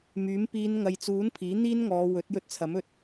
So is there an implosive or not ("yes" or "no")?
no